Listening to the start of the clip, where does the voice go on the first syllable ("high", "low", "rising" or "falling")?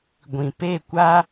low